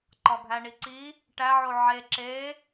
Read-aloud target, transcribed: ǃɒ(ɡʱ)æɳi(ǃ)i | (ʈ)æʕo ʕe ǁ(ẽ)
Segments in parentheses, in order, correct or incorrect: correct, incorrect: ǀ, correct, incorrect: e

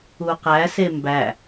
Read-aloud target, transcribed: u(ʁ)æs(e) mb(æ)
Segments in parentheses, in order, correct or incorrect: incorrect: q, correct, correct

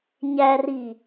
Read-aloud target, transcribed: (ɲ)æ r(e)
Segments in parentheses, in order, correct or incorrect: correct, incorrect: i

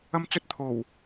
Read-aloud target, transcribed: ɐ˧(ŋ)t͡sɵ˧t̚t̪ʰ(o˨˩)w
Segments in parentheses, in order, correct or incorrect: incorrect: m, correct

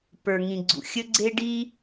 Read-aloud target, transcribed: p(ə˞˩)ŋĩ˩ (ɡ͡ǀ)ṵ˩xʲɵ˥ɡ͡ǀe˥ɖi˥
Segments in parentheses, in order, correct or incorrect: correct, correct

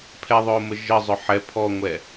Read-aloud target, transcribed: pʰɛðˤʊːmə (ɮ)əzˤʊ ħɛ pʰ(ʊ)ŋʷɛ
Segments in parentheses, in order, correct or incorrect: incorrect: ʒ, incorrect: ɔ

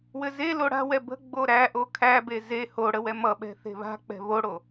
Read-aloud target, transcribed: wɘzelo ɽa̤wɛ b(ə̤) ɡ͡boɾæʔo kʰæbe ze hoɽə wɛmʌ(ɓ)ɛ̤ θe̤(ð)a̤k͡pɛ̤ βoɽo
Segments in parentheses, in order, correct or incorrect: correct, correct, incorrect: β

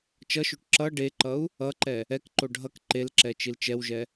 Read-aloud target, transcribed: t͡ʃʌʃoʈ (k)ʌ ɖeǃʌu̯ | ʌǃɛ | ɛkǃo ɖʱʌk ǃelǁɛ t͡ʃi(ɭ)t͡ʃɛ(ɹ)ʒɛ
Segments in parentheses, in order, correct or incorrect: incorrect: ǁ, incorrect: l, incorrect: w

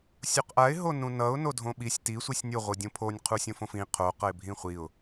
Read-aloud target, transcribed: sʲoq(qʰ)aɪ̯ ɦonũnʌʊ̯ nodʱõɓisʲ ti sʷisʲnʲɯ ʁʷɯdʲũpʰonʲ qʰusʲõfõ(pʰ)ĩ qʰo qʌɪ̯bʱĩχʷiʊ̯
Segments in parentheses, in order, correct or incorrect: incorrect: ʔ, incorrect: f

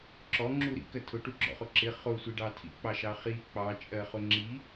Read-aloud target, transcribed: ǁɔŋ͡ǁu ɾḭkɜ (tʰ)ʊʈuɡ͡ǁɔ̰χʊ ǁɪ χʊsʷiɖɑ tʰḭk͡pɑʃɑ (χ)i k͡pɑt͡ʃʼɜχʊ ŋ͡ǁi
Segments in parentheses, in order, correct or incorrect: correct, correct

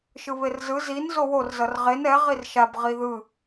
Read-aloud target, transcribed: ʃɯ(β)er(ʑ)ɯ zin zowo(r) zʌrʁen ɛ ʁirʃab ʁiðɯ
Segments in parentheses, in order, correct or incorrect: correct, incorrect: z, correct

